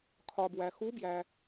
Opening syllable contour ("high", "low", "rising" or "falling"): low